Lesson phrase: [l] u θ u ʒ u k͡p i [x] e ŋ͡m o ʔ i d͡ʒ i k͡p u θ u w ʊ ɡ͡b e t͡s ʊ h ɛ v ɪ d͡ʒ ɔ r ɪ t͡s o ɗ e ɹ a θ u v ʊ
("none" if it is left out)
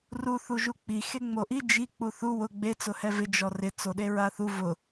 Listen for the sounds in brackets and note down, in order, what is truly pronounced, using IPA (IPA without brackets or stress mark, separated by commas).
r, x